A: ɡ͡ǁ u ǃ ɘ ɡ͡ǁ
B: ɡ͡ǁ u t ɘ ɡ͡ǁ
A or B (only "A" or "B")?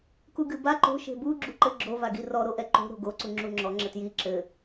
A